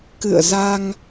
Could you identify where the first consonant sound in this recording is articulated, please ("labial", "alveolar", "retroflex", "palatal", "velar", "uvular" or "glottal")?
velar